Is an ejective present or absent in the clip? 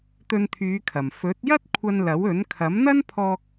absent